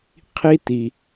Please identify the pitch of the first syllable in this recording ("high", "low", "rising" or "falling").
high